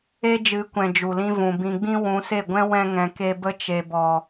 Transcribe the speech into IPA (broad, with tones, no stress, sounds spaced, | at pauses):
e˦ d͡ʒ ɨ˨˦ kʷ ɛ̃˨ d͡ʒ u˨ l ĩ˧ v ũ˨ b ĩ˨ ɡ͡b ĩ˧ w ũ˨˦ s e˦˨ ɡʷ ɛ̃˦ w ɛ̃˧ ŋ ɛ̃˨ k e˧ b ə˧ t͡ʃ e˨ b ɔ˨